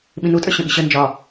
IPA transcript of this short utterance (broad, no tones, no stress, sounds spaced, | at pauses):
ɓ ĩ n u tʼ ə˞ ɕ ə̃ ɓ i̤ ɕ ə n d͡ʒ ɒ